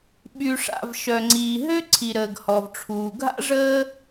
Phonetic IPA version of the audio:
ɓy˩ʂa̰˩v ʃœ˩ŋ͡ǀiː˩ɦø˥ ǀʰi˩ɾəː˩ɡhɔ˩vʈ͡ʂʰuː˩ ɡʱa̰˥ʐəː˥

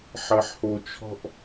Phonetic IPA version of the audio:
ħɐ˨ħho˨t͡ʃʰɔ̤˦ʔ

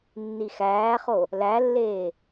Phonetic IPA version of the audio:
nːixæːχo | lælːeː

